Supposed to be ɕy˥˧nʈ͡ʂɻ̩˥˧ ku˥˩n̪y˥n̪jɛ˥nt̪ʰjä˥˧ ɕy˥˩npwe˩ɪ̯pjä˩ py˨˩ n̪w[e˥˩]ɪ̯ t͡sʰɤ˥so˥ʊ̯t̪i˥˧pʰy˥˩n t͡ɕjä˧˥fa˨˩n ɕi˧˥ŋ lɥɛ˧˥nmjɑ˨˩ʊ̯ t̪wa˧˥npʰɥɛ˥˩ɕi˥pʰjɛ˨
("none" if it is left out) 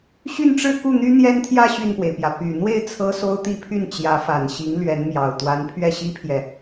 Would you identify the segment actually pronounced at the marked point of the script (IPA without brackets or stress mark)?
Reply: e˥˩